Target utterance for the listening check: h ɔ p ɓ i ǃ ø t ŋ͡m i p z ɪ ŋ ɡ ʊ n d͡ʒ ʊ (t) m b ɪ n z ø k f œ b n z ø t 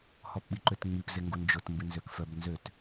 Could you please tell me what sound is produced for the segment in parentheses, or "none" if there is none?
t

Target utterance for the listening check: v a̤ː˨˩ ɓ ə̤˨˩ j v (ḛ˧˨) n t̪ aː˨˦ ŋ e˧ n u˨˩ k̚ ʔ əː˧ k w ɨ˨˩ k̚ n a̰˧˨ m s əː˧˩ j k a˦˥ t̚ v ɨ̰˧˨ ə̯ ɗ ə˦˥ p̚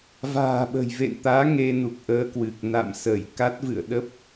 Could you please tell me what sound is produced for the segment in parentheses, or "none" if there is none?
ḛ˧˨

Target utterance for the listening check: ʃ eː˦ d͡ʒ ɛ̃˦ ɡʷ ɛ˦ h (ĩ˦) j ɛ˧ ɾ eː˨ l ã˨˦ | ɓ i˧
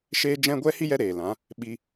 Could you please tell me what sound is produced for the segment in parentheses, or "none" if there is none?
i˦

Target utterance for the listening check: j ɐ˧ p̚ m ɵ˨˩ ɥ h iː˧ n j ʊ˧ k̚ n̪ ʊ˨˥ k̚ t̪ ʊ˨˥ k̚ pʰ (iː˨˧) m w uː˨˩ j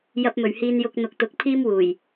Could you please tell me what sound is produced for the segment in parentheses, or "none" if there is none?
iː˥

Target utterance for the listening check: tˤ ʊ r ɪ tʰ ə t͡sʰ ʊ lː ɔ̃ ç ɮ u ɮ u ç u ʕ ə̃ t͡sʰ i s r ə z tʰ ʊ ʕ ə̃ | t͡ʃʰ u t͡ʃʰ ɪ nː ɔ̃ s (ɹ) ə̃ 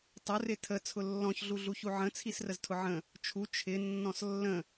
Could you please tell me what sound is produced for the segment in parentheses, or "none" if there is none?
lː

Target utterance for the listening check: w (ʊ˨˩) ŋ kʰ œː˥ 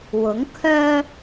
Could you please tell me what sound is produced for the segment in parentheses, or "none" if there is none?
ʊ˨˥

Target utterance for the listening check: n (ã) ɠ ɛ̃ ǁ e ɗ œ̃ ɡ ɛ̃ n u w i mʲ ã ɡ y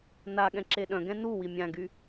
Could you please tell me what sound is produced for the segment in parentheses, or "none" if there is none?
a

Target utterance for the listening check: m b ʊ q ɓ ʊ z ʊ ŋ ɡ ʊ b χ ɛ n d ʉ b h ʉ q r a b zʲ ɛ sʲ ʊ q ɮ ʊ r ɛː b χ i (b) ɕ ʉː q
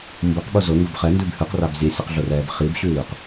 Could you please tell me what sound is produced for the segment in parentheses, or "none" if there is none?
b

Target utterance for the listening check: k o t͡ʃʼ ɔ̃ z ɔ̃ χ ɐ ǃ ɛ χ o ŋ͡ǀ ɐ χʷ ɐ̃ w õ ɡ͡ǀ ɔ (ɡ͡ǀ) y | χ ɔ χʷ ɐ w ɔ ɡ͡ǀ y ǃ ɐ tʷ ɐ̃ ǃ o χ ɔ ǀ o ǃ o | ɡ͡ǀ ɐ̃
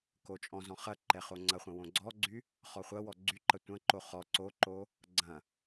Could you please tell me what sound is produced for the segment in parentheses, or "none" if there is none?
ɡ͡ǀ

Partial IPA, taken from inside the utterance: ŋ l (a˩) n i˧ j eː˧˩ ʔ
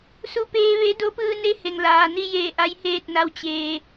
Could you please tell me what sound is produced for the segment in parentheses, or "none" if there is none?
aː˩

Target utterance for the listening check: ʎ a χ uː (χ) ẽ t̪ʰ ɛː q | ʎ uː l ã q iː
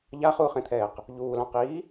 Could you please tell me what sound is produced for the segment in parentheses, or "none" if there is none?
χ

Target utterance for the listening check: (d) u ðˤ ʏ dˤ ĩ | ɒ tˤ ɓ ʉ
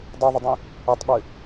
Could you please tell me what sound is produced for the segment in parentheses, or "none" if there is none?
dˤ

